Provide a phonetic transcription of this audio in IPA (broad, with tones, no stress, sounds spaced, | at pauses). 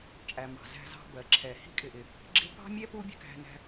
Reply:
t͡ʃʼ æ˩ m ɑ̤˩ z æ̤˧ z ɑ̤˧ b ɜ˩ ǁʰ ɛ˩ h i̤˥ kʼ ɪ˩ ʔ ɪ˩ | ɡ͡ǁ ɪ˥ p ɑ̤˥ mʲ ɛ˥ p u˥ bʲ ə̤˧ k æ̤˧ n æ̤˧